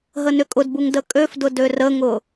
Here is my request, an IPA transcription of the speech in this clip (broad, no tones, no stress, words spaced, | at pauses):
ɦənʏkʼʊdbuŋ dəkʼøfdʊ dørəŋʊ